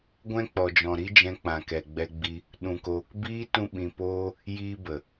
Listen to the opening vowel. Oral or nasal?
nasal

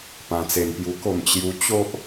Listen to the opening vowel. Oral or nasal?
nasal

